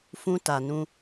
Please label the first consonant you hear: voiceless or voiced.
voiceless